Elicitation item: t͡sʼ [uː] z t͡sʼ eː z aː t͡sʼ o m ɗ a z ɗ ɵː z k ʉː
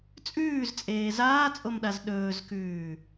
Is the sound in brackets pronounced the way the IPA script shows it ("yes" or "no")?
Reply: no